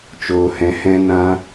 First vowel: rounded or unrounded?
rounded